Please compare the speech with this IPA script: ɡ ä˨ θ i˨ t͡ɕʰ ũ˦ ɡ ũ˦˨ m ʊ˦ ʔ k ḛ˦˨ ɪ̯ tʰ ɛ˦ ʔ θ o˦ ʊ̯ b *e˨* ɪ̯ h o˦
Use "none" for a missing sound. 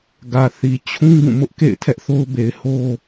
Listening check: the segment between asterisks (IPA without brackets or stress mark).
e˨